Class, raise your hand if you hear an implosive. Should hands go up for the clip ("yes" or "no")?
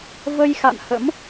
no